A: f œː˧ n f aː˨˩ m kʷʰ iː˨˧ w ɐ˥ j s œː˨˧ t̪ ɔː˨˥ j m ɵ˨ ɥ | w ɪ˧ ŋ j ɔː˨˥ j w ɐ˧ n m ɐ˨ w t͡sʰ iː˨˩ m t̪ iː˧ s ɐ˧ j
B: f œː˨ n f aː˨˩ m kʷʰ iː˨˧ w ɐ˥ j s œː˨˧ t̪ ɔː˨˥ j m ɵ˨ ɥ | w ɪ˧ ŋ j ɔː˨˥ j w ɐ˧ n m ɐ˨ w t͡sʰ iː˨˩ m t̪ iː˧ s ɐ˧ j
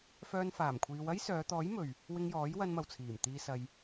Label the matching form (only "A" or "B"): A